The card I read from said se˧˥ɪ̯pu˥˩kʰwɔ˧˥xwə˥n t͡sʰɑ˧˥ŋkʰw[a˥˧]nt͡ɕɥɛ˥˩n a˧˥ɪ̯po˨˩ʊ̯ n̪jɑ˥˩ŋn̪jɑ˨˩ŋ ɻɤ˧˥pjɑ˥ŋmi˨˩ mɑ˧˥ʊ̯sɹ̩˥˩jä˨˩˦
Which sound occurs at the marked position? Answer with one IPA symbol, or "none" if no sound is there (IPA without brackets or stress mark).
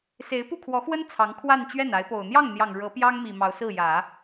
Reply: a˥˧